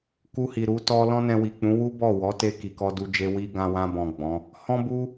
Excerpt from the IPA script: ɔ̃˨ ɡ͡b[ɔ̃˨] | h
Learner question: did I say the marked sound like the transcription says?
no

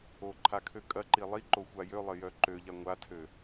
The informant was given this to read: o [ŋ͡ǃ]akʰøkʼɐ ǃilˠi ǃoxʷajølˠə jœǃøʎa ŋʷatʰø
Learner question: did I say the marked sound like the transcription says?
no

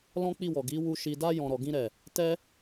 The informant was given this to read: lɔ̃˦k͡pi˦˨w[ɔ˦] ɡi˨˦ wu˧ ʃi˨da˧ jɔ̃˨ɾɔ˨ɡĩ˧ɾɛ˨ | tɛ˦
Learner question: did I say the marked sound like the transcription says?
no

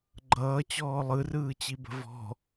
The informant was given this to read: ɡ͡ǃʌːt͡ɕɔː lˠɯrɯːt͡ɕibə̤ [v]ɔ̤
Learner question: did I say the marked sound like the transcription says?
yes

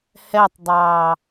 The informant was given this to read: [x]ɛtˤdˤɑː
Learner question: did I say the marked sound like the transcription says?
no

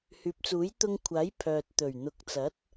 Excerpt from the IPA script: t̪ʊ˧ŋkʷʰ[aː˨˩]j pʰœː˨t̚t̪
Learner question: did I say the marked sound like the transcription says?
no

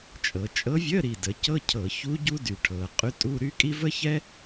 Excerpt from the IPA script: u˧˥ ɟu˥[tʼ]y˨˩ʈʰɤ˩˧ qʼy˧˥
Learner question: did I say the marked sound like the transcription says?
no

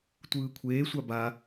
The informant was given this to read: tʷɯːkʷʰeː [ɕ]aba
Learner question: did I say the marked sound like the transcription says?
no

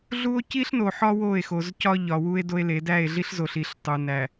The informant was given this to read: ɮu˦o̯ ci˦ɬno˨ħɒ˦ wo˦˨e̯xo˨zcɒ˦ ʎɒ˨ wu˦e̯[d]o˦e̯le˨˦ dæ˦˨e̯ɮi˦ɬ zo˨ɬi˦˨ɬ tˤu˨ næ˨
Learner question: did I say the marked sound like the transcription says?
yes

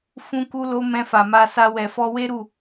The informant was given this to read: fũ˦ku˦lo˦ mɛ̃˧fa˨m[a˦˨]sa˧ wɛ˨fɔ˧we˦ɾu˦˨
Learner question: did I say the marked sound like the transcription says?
no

